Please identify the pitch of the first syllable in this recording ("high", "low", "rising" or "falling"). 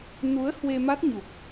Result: rising